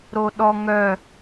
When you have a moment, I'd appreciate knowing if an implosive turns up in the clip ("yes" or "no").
yes